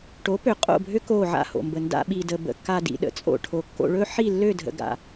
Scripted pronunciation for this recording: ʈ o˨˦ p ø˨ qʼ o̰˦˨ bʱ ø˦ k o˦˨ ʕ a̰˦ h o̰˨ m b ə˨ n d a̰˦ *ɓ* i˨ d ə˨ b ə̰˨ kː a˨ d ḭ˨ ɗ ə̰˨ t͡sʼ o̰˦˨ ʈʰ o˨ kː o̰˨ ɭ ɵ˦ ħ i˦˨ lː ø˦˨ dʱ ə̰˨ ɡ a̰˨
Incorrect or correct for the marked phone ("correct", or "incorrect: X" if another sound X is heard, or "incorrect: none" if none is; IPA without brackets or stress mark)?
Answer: correct